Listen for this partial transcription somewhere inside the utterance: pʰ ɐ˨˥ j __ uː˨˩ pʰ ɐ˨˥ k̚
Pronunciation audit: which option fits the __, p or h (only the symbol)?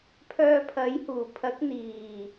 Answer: h